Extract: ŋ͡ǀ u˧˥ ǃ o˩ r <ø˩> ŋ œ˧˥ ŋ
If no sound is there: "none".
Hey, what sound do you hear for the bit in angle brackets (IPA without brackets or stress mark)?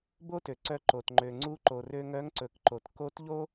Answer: ø˧